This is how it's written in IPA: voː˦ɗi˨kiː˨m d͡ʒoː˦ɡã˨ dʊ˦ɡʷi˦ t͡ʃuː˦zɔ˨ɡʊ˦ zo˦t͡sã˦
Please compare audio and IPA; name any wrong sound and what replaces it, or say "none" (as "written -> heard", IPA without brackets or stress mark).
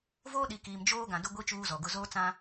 o˦ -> oː˦